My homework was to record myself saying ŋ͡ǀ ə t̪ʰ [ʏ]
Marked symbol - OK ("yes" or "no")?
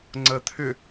yes